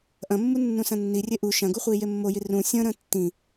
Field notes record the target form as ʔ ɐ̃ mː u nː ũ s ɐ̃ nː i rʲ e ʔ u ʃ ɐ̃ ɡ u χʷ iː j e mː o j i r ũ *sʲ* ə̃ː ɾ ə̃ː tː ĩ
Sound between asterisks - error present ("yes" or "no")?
no